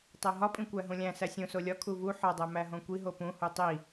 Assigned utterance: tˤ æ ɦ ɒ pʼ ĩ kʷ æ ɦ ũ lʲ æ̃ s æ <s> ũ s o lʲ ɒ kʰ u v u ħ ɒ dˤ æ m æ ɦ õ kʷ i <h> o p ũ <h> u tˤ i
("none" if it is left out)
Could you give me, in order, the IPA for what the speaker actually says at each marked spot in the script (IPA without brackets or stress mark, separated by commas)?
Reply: sʲ, ɦ, h